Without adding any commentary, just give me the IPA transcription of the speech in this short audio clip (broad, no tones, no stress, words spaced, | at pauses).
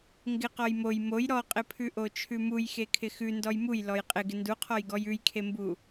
ŋɡɪ qɔjmoj moj ɾɔqʼɪpʰʉʔo t͡ʃʰʉmuj xekʰɪxʉ ndɔjmuj lɔjqʼɪ ɡɪnduqʰɔjɡɔj ʉjkʰembu